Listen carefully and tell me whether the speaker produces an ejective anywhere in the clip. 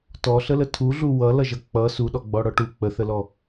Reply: no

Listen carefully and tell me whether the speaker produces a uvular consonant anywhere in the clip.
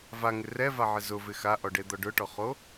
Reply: yes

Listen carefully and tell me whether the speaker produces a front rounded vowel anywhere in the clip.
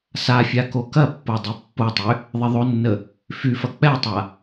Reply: yes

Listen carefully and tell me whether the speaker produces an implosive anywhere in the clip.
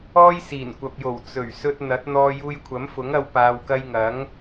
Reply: no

